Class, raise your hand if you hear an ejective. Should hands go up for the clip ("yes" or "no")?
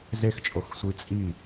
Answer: yes